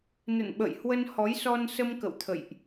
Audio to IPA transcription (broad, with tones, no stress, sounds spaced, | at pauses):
n ə̰˧˨ n ɓ ə̰˧˨ j h w ə˧ n h ɔ˨˦ j s ɔ˧ n s ə˧ m k ə̰˧˨ w t̪ʰ ə̰˧˨ j ʔ